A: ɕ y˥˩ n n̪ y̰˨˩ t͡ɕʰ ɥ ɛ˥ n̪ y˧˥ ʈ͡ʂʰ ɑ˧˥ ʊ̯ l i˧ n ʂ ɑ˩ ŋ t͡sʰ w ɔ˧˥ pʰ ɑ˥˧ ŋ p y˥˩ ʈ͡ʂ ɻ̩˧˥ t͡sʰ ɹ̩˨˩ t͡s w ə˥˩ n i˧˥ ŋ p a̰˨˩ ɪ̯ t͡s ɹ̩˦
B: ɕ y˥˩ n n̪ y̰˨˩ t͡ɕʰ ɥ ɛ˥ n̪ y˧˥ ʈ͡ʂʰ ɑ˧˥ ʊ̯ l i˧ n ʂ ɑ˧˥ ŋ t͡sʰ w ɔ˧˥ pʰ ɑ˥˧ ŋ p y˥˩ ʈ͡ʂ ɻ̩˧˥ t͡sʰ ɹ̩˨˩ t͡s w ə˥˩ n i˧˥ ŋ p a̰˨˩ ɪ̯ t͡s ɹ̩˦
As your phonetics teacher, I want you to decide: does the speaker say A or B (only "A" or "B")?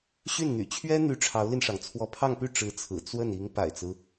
A